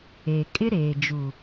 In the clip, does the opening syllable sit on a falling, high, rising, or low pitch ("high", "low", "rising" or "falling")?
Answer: low